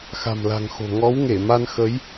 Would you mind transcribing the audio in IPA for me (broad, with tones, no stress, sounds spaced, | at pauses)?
x a̤˨˩ m l a̤˨˩ ŋ x o̤˨˩ ŋ ɔ˨˦ w ŋ e˧˩ m a˧ n x ə˨˦ j